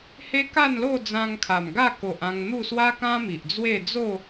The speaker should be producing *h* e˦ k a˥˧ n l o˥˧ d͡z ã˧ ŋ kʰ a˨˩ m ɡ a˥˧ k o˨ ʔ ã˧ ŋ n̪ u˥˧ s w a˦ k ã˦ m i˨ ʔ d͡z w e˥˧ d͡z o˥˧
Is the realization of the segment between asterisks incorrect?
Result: no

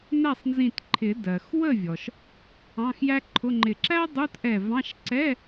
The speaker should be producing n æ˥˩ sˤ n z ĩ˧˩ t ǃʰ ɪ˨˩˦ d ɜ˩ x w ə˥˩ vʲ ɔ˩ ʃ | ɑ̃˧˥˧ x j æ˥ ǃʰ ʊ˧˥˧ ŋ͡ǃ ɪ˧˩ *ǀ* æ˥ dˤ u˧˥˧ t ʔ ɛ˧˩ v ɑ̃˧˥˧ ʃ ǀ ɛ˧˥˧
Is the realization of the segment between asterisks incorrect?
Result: yes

